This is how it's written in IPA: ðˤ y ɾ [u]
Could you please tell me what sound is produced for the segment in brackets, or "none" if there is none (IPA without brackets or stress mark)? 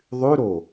o